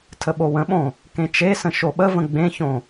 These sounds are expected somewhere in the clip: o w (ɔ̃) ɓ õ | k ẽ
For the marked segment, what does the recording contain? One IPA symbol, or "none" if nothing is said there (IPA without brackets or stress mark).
ə̃